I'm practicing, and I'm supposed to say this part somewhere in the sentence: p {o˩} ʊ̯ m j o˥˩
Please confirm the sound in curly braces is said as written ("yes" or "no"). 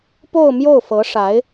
no